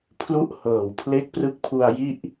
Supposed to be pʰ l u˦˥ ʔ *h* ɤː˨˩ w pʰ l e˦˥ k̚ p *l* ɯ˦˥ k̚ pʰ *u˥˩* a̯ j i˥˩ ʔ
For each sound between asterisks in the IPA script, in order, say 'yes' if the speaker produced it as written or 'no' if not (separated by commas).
yes, no, no